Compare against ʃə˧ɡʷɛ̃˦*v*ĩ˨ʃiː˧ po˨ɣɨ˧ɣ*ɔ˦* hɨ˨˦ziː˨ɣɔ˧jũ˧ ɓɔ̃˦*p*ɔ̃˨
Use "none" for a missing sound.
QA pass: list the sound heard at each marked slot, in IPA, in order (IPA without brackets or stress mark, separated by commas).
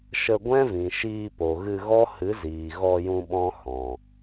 v, ɔ˦, h